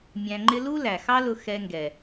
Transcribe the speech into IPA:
mʲ æ̃˧ ŋ͡ǃ ɪ˦ l u˦ l æ˨ x ɑ˦ l ʊ˧ x ɛ˧ ŋ ɡ ɛ˨

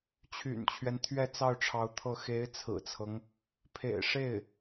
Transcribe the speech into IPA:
t͡ɕʰ y̰˨˩ n t͡ɕʰ ɥ ɛ˦ n t̪ʰ ɥ ɛ˥˧ t͡s ɑ˥˩ ʊ̯ ʈ͡ʂʰ ɑ˧˥ ʊ̯ t̪ʰ ɤ˥˩ x e˧˥ ɪ̯ t͡sʰ ɹ̩˨˩ t͡sʰ ɤ˦ ŋ | pʰ ḛ˨˩ ɪ̯ ʂ e˥˩ ɪ̯

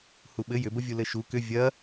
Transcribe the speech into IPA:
h u ɓ ɘ j ʏ b ə vʲ u l ɘ ʃ u k ʏ vʲ ɐ

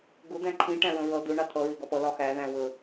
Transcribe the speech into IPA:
ɡ ʊ d̪ æ̃ ǃʰ ĩ ʈ æ̃ ɹ ə̃ ɹ ʌ d̪ ʊ ɳ ɑ t̪ʰ ʌ ɹ ɪ ɡ ɒ p ʌ l ɒ x æ ð æ̃ w ə

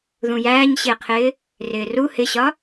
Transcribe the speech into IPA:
ð ũ j æː ɲ ɕ ɪː qʰ ɪː | r ɪː r u h ɪ ɕ ɒ

